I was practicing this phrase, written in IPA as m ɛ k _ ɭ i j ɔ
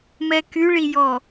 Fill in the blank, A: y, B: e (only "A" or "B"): A